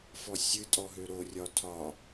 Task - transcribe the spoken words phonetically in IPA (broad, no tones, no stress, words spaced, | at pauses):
fɔsʲɨ tʼɔɦøɾorʲɒ tʰɒ